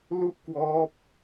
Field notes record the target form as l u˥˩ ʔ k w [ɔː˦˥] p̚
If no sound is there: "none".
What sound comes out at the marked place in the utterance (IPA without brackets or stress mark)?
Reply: ɔː˦˥